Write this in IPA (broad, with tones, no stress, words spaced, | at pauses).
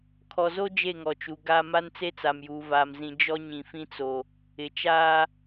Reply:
kʰɔ˨zo˦ d͡ʒe˦˨ŋɔ˨t͡ʃu˨ ɡa˦ ma˦nt͡se˦ t͡sa˨mjuː˨vaː˨m zĩ˨ d͡ʒɔ˦ ɲĩ˨fĩ˦t͡so˨ | ɪ˨t͡ʃaː˦